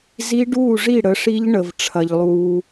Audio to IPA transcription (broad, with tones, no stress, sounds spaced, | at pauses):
z i˦˥ ɖ uː˥˨ ʐ i˥˨ ɽ ə˩˥ ʂ i˦˥ ʎ ɳ ə˩ v ʈ͡ʂʰ ɐ˩ ʎ lˠ uː˩